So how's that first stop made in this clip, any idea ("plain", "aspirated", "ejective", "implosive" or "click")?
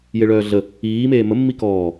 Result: plain